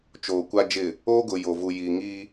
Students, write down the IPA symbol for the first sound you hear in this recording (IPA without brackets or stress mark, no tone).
t͡ʃ